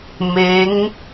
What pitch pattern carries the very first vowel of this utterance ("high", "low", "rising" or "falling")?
rising